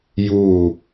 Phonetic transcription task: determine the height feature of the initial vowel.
high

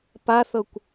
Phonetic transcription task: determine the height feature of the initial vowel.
low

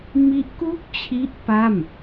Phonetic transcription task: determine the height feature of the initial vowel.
high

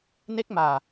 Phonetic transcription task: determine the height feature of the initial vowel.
mid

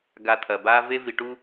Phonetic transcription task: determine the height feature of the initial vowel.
low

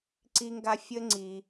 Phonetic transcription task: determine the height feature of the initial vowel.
high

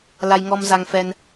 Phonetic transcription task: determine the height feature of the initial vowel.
low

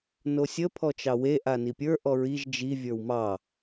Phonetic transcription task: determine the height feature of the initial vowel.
mid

